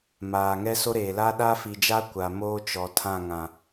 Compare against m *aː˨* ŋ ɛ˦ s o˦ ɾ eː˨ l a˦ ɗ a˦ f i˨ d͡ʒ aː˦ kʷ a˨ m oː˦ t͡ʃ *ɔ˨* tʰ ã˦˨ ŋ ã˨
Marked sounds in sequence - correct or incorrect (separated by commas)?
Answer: correct, correct